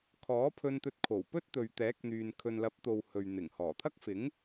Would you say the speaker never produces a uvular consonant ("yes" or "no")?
yes